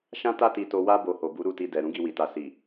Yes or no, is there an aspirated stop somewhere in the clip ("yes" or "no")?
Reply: no